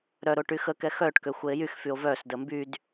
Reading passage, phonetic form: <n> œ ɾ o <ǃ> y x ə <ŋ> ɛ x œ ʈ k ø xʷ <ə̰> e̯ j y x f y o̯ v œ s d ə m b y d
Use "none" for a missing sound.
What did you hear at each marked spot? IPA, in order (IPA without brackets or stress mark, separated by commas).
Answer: ɾ, ʈ, k, ə